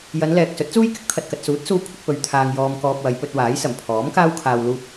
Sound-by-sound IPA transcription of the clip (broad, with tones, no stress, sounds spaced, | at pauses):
j ɐ˨˧ n l ɛː˨ k̚ s ɵ˨˥ t̚ t͡s uː˥ j k ɪ˥ k̚ t̪ʰ ɐ˨ t̚ k ɐ˨ t̚ s uː˨˥ t̚ s uː˧ kʷʰ ɪ˧ k̚ p ɵ˨˧ ɥ t̪ʰ aː˧ ŋ j ɔː˧ m k ɔː˧ p̚ w ɐ˨˧ j p ɵ˧ t̚ w aː˨˥ j s ɐ˨˩ m pʰ ɔː˨˥ m k aː˥ w kʰ aː˧ w l uː˧ p̚